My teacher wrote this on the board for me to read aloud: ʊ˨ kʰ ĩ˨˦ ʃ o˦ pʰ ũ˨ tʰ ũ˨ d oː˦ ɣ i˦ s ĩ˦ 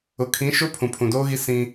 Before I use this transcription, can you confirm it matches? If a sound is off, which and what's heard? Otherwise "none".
tʰ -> pʰ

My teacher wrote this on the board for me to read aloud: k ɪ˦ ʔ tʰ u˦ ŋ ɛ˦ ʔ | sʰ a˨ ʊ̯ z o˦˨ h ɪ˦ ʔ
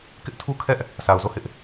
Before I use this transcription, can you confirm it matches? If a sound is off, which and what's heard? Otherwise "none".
ŋ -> kʰ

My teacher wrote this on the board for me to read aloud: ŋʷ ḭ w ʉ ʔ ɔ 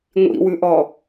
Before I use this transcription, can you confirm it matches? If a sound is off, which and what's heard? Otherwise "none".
none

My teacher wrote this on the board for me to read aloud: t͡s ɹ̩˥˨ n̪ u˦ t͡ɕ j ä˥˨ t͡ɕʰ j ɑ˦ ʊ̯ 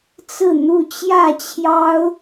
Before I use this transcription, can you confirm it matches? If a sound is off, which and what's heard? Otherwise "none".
u˦ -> u˥˨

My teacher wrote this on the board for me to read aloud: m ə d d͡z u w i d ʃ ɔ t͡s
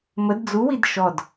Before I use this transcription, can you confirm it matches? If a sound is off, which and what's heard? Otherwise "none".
t͡s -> d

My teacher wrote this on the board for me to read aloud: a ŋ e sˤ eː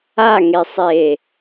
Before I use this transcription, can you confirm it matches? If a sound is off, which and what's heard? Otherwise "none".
none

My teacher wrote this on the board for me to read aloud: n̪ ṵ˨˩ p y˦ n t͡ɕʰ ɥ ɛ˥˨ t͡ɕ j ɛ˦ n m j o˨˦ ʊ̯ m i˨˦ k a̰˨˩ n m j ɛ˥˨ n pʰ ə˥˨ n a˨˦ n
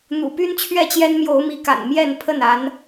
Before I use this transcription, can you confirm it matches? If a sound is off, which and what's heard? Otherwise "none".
none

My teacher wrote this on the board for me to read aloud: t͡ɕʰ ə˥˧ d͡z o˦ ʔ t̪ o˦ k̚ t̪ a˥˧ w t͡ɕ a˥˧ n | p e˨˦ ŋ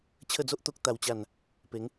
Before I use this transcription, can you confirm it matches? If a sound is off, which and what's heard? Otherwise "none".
none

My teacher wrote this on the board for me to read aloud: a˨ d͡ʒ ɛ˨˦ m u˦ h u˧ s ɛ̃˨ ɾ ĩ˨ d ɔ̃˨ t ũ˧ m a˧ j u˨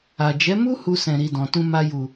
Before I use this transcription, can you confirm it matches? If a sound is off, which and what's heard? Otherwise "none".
ĩ˨ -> i˨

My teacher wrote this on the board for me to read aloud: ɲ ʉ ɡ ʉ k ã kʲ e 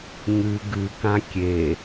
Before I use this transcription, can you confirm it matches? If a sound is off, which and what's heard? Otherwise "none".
none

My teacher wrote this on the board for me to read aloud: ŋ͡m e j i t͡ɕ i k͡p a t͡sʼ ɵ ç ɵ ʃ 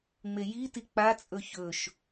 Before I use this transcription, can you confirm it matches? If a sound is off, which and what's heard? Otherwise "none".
t͡ɕ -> t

